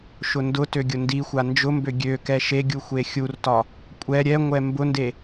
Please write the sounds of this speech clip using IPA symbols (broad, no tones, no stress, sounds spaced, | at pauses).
ʃ ʊ n d ʊ t ø ɡʲ ʊ n d i xʷ a n d͡ʒ ʊ m b ø ɡʲ ø k ɛ ʃ e ɡʲ u xʷ e xʲ u r t ɒ | kʷʼ ɛ ɾʲ ɛ ŋʷ ɛ m b ʊ n d e